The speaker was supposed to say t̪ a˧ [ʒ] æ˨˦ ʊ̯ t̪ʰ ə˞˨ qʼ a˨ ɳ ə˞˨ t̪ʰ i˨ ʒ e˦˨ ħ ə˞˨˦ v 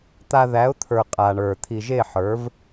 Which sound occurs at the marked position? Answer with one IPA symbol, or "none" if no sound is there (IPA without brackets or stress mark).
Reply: ð